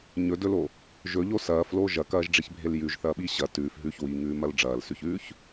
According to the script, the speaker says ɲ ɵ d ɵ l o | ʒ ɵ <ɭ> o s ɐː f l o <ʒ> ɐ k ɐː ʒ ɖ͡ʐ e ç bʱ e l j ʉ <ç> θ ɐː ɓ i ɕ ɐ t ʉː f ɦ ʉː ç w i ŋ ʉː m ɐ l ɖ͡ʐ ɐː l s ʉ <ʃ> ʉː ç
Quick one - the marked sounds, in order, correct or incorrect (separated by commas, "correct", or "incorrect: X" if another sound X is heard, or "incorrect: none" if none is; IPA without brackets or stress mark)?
incorrect: ʎ, correct, incorrect: ʒ, incorrect: ç